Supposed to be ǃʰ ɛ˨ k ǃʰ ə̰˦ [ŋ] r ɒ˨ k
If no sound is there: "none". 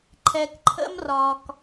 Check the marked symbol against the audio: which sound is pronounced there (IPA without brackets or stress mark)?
m